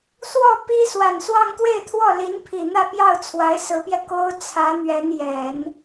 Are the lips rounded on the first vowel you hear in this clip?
yes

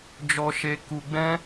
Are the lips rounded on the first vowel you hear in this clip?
yes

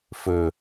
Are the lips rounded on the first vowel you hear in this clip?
yes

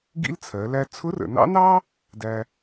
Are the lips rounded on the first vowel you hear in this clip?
no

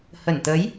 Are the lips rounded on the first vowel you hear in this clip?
no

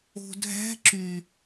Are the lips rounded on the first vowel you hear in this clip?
yes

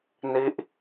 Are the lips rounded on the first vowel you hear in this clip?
no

